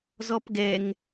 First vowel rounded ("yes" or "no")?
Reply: yes